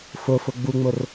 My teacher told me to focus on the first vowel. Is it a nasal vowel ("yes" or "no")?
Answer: no